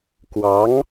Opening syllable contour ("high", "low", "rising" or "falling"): rising